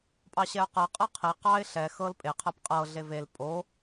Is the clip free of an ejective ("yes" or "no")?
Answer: no